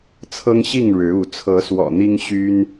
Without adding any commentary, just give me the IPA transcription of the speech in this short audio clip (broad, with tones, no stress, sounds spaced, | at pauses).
t͡sʰ ɤ˦ ŋ ɕ i˥˨ ŋ ɻ ɻ̩˨˦ u˨˦ t͡sʰ ɤ˨˦ s w ɔ̰˨˩ n̪ i˦ ŋ ɕ y˦ n